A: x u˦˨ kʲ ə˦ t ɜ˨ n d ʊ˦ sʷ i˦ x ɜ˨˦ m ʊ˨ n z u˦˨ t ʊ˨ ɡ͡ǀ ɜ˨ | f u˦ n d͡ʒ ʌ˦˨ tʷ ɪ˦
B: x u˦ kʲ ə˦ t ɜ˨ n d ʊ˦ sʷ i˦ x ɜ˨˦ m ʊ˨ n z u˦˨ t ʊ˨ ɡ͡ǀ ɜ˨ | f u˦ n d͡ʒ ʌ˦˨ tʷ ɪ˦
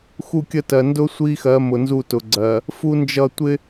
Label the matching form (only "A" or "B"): A